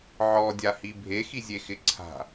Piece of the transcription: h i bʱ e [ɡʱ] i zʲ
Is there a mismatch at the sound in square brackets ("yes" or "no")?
yes